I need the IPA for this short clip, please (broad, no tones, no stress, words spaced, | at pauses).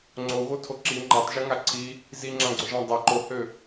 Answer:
ŋ͡ǀoɣotʰo ǁi ŋ͡ǃatˤʒoŋa ǀʰi | ziŋ͡ǁãɡ͡ǀʊʒã dˤɛ ǃohø